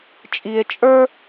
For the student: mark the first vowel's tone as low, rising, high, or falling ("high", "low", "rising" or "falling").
low